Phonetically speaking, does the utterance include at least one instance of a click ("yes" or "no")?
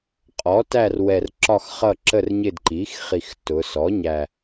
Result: yes